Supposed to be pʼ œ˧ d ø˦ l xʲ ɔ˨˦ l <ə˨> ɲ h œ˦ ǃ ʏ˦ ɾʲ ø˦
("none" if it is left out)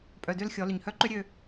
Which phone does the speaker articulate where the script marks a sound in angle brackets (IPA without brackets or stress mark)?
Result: ʏ˨